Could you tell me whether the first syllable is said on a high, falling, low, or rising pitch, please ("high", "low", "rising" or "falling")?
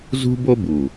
high